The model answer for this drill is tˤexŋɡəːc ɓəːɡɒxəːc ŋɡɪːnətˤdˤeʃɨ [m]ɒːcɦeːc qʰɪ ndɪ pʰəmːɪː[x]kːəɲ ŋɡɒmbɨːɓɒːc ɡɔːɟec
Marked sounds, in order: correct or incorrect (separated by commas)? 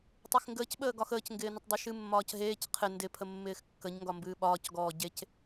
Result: incorrect, correct